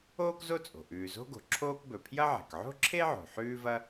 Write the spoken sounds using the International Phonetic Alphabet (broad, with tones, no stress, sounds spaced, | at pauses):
oː˥ k z o˥ t͡sʼ o̤˩ ʔ ʉː˩ z o̤˥ ɡ o̤˩ ǁʰ oː˥ k b ɵ˩ pʰ j ɐ˥ ʕ e̤˩ k ʕ o̤˥ ǁʰ e˥ ʕ o̤˩ ħ ʉː˥ v ɐ˥